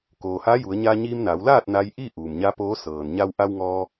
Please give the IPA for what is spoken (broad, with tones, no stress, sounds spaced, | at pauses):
k oː˩ h aː˧˥ j u˩˧ ə̯ ɲ a˧ ɲ iː˧ m n a˩˧ w l aː˥˨ t̚ n a˧ j ʔ i˥˨ ʔ u˩ m ɲ a˧˥ p oː˧˥ s ɤː˩ n ɲ a˧ w ʔ a˧ w ŋ ɔː˧